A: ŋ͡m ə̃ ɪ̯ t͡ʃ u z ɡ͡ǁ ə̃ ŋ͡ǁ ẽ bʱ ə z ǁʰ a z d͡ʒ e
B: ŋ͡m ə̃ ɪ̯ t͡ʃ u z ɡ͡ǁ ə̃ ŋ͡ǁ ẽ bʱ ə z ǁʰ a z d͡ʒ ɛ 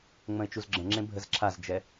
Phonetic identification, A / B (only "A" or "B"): B